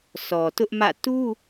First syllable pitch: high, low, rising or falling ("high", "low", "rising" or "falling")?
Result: low